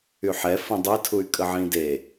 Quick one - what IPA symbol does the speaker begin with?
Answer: y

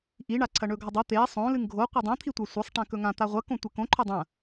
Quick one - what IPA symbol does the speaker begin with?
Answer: ʔ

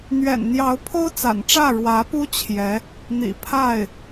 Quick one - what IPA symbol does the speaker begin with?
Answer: n̪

